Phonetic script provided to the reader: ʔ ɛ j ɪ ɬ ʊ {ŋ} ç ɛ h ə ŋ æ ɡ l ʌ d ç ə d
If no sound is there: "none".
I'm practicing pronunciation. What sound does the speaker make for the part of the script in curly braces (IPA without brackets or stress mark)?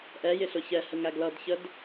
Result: none